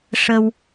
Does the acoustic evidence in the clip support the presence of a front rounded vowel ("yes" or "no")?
no